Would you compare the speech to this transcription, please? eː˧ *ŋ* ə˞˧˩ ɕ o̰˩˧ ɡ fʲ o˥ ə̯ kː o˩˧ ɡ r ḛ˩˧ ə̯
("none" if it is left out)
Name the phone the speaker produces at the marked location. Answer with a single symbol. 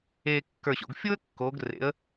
kː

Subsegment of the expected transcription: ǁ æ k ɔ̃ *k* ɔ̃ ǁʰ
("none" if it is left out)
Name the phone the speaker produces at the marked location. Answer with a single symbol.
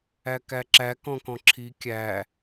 k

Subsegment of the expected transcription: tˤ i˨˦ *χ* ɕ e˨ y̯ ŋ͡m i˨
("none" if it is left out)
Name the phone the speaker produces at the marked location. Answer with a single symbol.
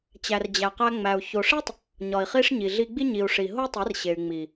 r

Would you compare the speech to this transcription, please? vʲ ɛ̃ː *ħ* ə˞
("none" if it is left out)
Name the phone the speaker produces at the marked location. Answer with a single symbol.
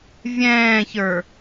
ç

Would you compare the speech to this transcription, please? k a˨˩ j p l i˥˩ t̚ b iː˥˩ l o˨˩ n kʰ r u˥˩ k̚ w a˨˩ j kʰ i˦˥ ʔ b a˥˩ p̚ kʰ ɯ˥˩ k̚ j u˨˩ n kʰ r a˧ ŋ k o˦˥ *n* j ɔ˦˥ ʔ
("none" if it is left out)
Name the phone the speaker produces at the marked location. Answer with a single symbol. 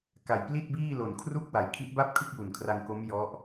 m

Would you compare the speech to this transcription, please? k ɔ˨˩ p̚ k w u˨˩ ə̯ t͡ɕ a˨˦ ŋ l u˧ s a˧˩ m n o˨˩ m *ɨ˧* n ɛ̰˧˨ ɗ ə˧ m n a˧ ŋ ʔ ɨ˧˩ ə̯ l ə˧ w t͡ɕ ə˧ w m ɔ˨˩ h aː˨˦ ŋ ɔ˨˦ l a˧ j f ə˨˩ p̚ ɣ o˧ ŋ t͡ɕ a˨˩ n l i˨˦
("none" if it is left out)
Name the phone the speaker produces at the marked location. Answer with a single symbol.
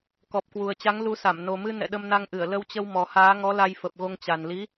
ɨ˧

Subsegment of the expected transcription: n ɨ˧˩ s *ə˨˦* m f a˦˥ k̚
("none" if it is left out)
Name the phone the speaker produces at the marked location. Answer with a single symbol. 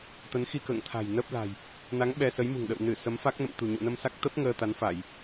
ə˨˦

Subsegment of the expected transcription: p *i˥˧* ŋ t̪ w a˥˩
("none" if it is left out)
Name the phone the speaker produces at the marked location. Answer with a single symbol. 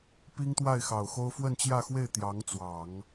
i˥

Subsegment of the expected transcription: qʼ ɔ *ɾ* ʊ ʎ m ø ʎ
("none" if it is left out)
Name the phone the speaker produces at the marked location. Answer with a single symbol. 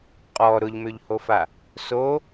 ɾ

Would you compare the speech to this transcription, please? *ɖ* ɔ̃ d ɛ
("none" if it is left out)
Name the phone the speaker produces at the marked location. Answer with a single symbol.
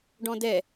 ɖ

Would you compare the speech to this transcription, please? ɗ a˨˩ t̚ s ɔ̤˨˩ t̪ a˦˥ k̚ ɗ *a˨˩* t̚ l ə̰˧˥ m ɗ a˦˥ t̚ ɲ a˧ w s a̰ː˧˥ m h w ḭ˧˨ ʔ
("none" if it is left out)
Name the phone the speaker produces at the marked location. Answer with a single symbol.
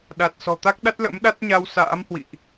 a˦˥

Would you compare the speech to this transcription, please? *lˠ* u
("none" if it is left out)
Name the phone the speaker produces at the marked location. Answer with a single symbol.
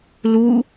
l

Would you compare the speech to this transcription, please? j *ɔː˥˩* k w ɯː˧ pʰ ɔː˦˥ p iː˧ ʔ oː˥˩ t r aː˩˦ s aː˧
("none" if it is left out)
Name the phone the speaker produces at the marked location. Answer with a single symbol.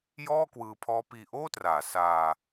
ɔː˥˩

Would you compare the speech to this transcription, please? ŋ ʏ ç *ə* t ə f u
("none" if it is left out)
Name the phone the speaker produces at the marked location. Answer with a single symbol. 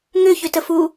ʏ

